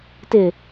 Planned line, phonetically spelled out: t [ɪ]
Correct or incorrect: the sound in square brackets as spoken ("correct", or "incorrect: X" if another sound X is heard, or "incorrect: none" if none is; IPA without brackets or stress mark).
correct